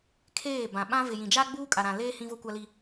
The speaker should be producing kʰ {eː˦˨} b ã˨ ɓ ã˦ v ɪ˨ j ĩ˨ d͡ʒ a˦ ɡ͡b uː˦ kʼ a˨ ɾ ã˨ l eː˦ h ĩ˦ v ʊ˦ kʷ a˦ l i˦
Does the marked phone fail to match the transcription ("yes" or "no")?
no